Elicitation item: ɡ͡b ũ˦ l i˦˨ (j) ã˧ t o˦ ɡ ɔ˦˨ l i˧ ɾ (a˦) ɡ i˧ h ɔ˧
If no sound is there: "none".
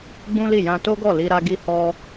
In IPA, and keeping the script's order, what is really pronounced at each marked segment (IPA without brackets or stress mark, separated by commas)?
j, a˧